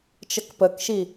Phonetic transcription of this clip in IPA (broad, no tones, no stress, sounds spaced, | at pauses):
t͡ʃ ə k p ə k ʃ i